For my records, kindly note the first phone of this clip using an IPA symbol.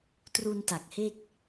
t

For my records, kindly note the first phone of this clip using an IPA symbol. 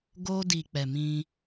ɡ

